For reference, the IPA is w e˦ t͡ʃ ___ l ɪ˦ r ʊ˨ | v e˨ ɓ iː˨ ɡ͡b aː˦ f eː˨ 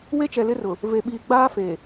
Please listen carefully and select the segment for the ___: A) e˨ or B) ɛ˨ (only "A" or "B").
B